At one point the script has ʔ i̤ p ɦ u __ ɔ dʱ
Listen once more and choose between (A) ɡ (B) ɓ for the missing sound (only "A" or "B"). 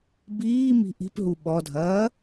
B